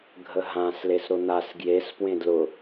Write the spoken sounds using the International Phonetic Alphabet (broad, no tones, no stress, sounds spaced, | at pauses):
ɡʱ ə ɦ ã s l e s ɾ ʊ n̪ a s ɡ j e s p w ẽ d l ʊ